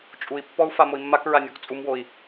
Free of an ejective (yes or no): no